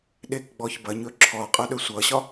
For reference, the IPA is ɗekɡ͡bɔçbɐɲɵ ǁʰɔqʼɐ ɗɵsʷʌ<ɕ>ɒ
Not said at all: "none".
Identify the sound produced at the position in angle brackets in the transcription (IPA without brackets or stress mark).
ɕ